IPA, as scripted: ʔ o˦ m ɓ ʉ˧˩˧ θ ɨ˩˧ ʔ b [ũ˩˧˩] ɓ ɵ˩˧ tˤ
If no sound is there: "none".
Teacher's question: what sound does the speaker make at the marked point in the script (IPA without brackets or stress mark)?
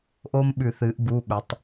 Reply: u˩˧˩